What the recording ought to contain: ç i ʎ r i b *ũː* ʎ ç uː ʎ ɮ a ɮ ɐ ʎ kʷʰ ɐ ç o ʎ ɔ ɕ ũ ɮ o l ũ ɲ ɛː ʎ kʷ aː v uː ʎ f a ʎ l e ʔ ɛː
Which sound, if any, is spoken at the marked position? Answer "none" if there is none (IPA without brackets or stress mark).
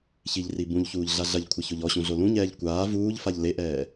ũ